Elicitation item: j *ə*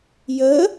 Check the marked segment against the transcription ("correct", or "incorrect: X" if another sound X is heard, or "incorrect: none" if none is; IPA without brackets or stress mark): correct